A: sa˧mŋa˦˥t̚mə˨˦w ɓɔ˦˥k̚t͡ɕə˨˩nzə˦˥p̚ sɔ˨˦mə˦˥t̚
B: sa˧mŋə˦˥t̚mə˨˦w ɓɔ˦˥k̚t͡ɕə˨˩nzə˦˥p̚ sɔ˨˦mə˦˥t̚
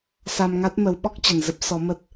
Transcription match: A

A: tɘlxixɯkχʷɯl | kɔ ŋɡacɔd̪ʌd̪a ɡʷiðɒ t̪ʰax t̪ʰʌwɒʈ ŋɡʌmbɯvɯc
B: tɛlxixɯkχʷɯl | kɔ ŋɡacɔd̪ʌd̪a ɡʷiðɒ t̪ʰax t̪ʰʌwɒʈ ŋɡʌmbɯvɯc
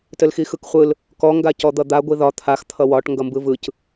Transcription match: A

